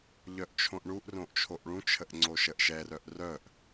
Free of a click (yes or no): no